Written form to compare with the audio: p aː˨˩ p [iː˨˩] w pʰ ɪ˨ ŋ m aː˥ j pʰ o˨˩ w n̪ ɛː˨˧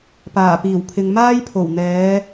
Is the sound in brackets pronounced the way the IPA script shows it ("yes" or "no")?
yes